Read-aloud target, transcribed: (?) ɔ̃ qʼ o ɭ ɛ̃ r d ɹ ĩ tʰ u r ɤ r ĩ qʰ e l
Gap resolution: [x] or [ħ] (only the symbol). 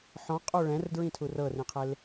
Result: ħ